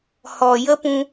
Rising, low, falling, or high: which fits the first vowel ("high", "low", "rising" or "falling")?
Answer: low